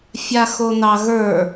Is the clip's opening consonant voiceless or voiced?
voiceless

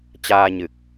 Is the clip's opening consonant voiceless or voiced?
voiceless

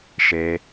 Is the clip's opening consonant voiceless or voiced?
voiceless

